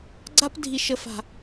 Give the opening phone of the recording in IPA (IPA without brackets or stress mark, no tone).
ɡ͡ǀ